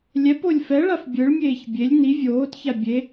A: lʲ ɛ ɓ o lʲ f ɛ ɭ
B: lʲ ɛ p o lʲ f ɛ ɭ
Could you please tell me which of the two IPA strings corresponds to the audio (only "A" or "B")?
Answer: B